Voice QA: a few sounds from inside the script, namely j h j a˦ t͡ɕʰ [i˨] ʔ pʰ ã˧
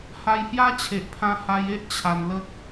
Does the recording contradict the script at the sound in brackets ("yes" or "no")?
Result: yes